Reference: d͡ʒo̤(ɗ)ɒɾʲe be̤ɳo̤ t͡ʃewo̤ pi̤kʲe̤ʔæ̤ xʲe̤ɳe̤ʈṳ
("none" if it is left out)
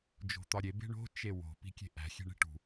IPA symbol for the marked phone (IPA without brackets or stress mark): t̪